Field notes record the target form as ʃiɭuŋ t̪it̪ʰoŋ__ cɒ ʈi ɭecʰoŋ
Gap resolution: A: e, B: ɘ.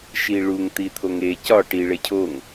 A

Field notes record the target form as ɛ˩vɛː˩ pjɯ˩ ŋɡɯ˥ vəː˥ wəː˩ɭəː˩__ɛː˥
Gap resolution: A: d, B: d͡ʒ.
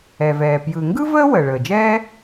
B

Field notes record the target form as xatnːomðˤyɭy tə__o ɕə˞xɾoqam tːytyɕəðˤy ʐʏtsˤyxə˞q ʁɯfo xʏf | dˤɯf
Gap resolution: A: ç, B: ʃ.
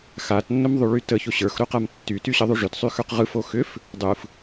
A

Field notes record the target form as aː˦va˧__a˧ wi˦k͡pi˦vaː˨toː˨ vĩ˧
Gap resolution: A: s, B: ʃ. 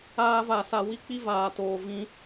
A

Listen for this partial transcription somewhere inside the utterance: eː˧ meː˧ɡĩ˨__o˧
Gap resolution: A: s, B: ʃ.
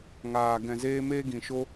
B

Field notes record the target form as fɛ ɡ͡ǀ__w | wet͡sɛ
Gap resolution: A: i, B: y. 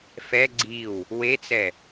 A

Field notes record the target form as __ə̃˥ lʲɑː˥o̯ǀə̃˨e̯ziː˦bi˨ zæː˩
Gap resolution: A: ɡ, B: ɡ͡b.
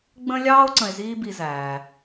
B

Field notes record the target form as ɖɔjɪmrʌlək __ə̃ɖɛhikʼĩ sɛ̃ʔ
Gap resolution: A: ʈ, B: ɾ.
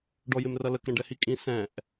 B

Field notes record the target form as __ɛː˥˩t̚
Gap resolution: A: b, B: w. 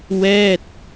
B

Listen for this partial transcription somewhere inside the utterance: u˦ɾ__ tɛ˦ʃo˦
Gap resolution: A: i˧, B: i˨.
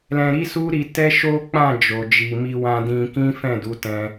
A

